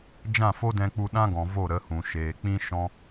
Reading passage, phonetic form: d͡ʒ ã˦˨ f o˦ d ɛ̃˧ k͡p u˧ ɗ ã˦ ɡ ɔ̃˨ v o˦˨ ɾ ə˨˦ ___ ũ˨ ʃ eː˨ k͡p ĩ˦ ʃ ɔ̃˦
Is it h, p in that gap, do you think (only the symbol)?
h